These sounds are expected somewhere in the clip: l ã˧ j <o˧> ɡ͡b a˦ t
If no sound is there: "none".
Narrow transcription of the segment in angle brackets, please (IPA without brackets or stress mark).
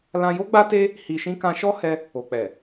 o˦